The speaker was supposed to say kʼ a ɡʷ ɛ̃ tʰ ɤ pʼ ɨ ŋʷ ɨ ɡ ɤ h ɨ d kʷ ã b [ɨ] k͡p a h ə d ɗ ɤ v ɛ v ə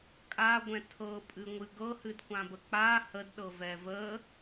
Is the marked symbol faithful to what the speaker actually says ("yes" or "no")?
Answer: no